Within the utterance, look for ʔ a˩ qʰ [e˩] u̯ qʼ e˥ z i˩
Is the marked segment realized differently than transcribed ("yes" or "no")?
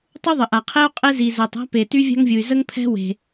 yes